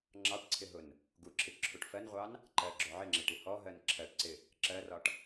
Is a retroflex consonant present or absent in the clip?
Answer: present